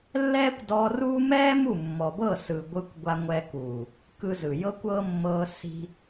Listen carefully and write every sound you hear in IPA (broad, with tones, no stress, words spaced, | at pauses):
lːɛː˦kʷdɔ˧ruː˦ mɛː˦ mu˦˨mːɔ˨bɤ˦˨ sɯ˨ɡʷɯ˧kʷ ɡʷa˧ŋʷɛ˧kuː˨ | kɯ˧zɯ˨ jɤ˦kʷɤ˦mːɤː˧ si̤˧